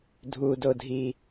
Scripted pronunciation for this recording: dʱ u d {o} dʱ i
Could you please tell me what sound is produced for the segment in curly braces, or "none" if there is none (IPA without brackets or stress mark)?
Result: o